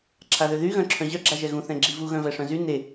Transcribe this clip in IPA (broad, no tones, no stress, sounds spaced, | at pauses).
ǁʰ a ð ø ð y ɣ œ̃ ǁʰ œ̃ ʑ œ ɡ͡ǁ a ʒ ɛ ɣ ũ θ ɛ̃ ɡ͡ǁ i v u ɣ œ̃ v ɛ ʂ œ̃ z y n e